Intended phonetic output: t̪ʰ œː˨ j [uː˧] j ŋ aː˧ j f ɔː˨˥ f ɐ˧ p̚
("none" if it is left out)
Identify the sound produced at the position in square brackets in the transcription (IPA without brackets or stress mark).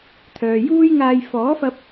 uː˥